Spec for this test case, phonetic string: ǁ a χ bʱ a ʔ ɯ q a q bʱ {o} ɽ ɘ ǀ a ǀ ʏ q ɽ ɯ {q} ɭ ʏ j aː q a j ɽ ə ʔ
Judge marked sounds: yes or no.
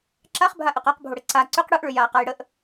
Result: yes, no

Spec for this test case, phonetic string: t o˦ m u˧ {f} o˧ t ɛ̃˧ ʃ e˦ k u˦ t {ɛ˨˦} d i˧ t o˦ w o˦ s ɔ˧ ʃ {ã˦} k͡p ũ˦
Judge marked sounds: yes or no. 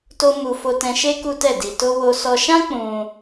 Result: yes, no, yes

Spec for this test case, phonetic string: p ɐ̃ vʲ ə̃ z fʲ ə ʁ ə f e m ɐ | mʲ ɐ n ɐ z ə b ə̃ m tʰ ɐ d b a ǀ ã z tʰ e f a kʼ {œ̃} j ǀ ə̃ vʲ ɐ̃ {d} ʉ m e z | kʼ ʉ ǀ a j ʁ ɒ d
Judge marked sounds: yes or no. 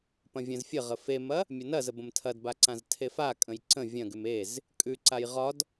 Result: no, no

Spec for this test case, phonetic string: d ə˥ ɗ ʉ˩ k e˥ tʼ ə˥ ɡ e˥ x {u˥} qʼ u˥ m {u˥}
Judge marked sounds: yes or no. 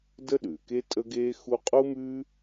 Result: yes, no

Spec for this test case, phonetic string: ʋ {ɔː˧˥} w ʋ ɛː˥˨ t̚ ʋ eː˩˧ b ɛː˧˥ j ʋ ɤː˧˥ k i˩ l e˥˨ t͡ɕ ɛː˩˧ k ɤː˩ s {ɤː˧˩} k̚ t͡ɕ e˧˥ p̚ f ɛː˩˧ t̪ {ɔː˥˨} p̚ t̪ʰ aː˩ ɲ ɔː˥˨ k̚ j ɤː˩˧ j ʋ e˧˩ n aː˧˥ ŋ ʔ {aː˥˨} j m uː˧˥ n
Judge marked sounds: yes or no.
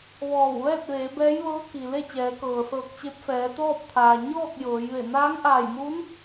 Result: no, yes, yes, no

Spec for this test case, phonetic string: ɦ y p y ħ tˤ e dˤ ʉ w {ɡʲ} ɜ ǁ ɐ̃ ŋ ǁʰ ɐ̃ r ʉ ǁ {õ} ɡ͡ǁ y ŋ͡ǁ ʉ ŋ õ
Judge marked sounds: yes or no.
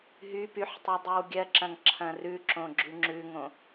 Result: yes, yes

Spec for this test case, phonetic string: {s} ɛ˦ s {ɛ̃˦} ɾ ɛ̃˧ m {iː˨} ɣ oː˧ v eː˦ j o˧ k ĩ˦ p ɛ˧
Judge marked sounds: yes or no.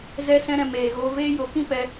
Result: no, yes, no

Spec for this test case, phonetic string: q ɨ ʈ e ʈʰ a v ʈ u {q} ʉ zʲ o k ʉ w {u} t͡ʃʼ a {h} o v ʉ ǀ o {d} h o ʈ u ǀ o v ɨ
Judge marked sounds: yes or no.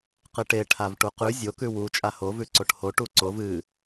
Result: yes, yes, yes, no

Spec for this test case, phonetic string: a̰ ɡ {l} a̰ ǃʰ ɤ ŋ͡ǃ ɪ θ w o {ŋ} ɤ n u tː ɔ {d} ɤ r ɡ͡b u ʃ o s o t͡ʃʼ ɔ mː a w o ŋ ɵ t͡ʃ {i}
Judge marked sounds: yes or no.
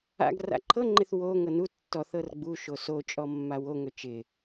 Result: no, yes, no, no

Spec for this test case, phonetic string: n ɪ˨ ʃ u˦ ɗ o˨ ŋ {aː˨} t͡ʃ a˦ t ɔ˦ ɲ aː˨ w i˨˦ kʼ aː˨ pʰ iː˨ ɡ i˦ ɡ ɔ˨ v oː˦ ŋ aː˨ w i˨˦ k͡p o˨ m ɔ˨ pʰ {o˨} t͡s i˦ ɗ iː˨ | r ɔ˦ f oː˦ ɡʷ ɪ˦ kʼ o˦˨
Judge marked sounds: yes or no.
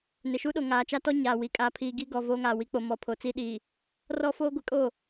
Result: yes, yes

